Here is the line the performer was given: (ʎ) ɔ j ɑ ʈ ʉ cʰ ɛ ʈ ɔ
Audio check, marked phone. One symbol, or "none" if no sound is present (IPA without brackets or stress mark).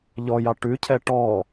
ʎ